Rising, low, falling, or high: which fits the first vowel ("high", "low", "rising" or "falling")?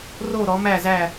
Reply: falling